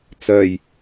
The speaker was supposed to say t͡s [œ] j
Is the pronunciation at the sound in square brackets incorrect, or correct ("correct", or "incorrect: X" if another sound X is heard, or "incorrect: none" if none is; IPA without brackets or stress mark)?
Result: correct